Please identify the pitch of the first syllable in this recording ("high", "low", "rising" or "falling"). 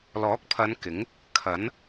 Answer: rising